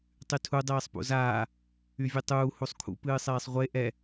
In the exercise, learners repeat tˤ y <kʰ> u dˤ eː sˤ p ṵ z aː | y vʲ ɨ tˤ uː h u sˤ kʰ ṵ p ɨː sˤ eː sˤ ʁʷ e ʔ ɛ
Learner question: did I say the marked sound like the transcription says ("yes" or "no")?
no